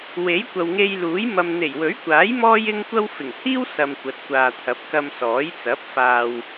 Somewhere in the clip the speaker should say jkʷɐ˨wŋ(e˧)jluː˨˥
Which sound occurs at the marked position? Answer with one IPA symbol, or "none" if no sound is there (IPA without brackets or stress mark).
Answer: e˧